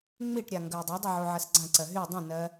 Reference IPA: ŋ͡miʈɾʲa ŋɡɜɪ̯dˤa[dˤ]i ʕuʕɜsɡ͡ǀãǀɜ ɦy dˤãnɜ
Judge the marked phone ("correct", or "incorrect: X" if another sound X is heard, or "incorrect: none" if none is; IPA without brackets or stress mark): correct